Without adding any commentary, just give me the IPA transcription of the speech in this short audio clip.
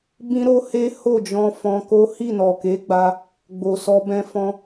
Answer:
b ĩ˦ ɾ o˦ h e˦ h o˦˨ d͡ʒ ɔ̃˧ f ɔ̃˧ k o˦ h i˦˨ n ɔ˨ k e˨˦ ɡ͡b a˧ | ɡ͡b o˨ s ɔ˧ b ɛ̃˧ f ɔ̃˧

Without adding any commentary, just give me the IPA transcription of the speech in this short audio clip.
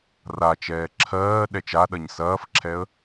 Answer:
r a t͡ʃ ɛː ǁʰ ɜː ɗ ɛ t͡ʃ a ɗ ɐ ɲ s ɐː f ǁʰ ɛ ə̯

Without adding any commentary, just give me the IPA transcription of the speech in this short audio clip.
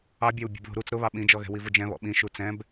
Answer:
ɑ bʲ ɑ w bʲ ɛ̤ b ð ṳ ɾ u t͡s ɾ ʊ β ɑ ɓ ĩ d͡ʒ ɔ ɣ ɛ̤ w i v ʊ d͡ʒ ɛ̃ β ɔ̰ ɓ ĩ ʃ u t͡s ɛ̃ b

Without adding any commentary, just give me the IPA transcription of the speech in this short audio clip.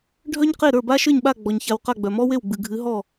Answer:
ɖʱ œ˥ ɲ q e˥˩ ɾ ə˞˥˩ b a˥ ʃ ə˞˥˩ ɲ ɓ a˥˩ ɡ͡b ɔ˩ ɲ ç a˨˦ w q a˥˩ ɡ͡b œ˩ m ɔ˥ w e˥˩ w ɡ͡b ɨ˩ ɡʱ ɨ˨˦ ɦ ɔ˥˩

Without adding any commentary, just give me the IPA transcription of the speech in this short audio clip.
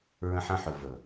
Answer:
ɹ ə̃˧ ħ ɐ̃˧ ħ ɵ˨ v ɵ˨

